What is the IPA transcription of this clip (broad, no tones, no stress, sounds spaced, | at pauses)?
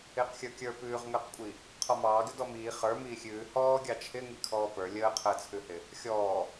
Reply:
ɪː q xʲ ə˞ kʲ ə˞ p ʉː ʁ ŋ əː q kʷʼ i | qʰ ɔ m ɑː ɡ ɪ d ɔ m iː χ ə˞ m iː xʲ ʉː h ɔː ɡʲ ɑ t͡ʃʰ ɪ ŋ i kʰ ɔː p ə˞ lʲ əː qʰ əː t͡sʰ ʉ h ɪ | xʲ ɔː